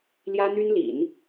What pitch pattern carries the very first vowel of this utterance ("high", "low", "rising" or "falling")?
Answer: high